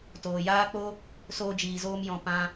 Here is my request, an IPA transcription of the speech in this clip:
t oː˨ j aː˦ k͡p o˦ | s oː˧ d͡ʒ iː˨ z oː˧ m j ɔ̃˨ p ã˧

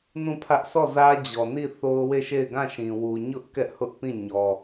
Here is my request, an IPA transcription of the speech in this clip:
n ũ˦˨ pʰ ä˦ ʔ sʰ ɔ˦˨ z ä˦ d͡ʑ ɔ˨ n i˦˨ θ o˦ ʊ̯ w e˦˨ ʃ e˦˨ ɪ̯ ɡ ã˦˨ ʃ ĩ˨ w u˨ ɲ ʊ˦ ʔ k ɛ˦ ʔ h ʊ˦ ʔ p ĩ˦˨ ɲ ɔ˨

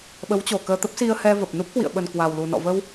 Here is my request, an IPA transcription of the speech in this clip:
ɓ ə˨˦ w t͡ɕ o˧˩ k əː˧ t̪ ə˦˥ p̚ s i˧ ə̯ h ɛ˧ v ə˨˩ p̚ n u˦˥ p̚ k w ḭ˧˨ ə̯ ɓ ə˨˩ n k w a˨˩ w l u˨˩ n ɔ̰˧˨ v ə˧ w

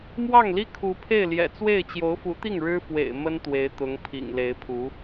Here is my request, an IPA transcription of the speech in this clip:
m w ɑ˥˩ ŋ l i˥ kʰ u˧˥ pʰ e˥˩ ɪ̯ l j ɛ̰˨˩ t͡s w e˥˩ ɪ̯ t͡ɕ j o˧˥ ʊ̯ f u˧˥ t̪ i˥˩ ŋ ɻ ɻ̩˥ f w ḛ˨˩ ɪ̯ m ə˥ n t̪ w e˧˥ ɪ̯ t̪ ʊ˧˥ ŋ pʰ ḭ˨˩ ŋ l e˧˥ ɪ̯ pʰ u˧˥

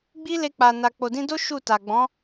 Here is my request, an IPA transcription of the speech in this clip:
ɡ͡b i˦ l e˧ k͡p a˨ n a˨ k͡p o˨ d ĩ˧ d o˦ ʃ u˦˨ t a˨ ɡ͡b ɔ̃˨˦

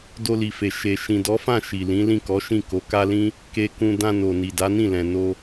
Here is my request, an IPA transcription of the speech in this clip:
d o˧ l i˨ f e˨ ʃ e˨ ʃ ĩ˨ d ɔ˨˦ f ã˦˨ ʃ i˨ l ĩ˨˦ l ĩ˦˨ k ɔ˨˦ ʃ ĩ˦˨ k o˨˦ k a˦ l ĩ˦ | k e˧ k ũ˧ d ã˧ n o˨ n i˨ d a˨˦ n ĩ˦˨ l ɛ̃˨ n o˧

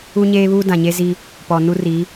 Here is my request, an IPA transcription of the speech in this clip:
u˦ ɲ eː˦ β uː˦ d ã˨ ɲ e˦ z i˦ | p ɔ˨ n u˦ r i˨˦

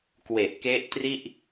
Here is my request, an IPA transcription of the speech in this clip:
k w e˨˩ ʔ k e˦˥ ʔ t r i˥˩ ʔ

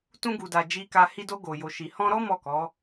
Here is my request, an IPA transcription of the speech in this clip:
t ũ˧ ɡ u˨ d a˨ d͡ʒ i˨ k a˨ h i˧ d o˧ ɡ o˨ j o˨ ʃ i˨ h ɔ̃˧ ɾ ɔ˦ m ɔ˦˨ k ɔ˨˦

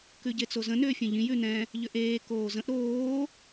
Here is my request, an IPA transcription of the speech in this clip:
k ʉ ɟ e t͡s o z ə̃ n ʏː fʲ ẽ ʎ ĩ j ʉ n ɛ̃ | ʎ ʏ ʔ eː k oː z ə̃ ʔ ɾ oː

